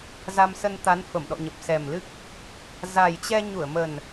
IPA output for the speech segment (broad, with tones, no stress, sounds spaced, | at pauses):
z a˧ m s ə˧ n t̪ a˨˦ n f ə˧˩ m ɗ ɔ̰˧˨ ɲ ə˨˩ p̚ s ɛ˨˩ m l ɨ˦˥ k̚ | z a˨˩ j t͡ɕ ɛ˧ ɲ u˧˩ ə̯ m ə˨˩ n